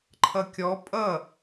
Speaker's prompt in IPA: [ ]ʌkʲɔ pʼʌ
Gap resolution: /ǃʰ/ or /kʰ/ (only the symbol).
ǃʰ